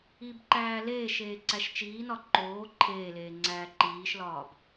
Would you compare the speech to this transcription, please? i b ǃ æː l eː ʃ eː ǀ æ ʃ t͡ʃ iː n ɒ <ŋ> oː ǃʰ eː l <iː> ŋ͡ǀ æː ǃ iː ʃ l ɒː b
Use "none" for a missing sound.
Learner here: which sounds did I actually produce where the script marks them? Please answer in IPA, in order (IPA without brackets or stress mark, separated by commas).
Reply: ǃ, eː